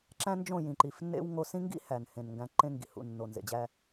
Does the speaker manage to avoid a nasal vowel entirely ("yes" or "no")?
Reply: no